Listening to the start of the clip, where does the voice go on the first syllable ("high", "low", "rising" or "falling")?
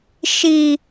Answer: low